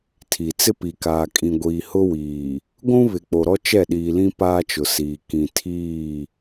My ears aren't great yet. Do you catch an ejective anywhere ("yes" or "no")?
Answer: yes